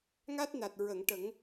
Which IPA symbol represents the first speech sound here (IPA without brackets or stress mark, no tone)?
ŋ